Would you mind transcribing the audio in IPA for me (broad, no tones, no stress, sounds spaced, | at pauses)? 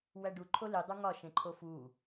w æ ɖ u ǃʰ o l i dˤ u ŋ ɒ ʃ ẽ ǃʰ o f u